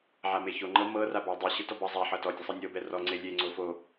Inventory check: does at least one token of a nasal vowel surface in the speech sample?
no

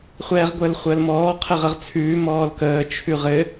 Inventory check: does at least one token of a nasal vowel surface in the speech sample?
no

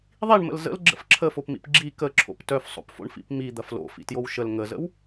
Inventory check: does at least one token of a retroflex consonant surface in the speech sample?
yes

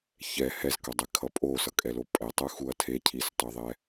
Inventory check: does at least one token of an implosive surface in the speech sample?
no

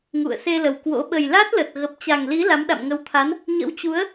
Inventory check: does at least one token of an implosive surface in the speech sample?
yes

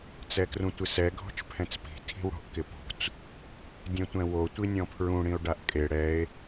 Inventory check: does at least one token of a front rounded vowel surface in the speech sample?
no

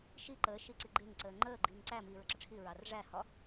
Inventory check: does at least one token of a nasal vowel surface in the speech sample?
no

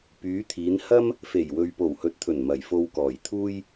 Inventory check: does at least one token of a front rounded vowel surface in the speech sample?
yes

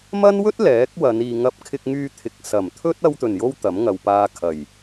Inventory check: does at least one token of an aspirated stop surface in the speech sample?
yes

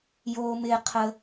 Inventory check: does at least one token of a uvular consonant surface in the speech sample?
yes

